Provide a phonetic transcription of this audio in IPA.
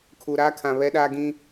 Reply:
kʰu˨ɾaː˦kʰã˨ βɛ˦ɗa˦ɡĩ˦

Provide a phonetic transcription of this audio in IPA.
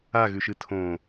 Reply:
aɣʉʃɨ tʰõ

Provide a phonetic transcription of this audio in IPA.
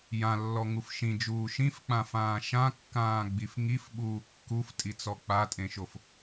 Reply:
jãlːɔŋuf ʃĩd͡ʒuː ʃĩfk͡pãfãː ʃãkːãːɡ͡bif ŋifɓuː kːuftʼit͡sɔ k͡patʼẽʃof

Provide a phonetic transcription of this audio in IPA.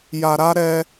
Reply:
ja˨ɾa˦ ɾɛ˦

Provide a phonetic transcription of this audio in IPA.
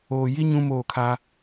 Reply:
oː˨ji˦ ɲũ˦moː˦˨kʰa˦

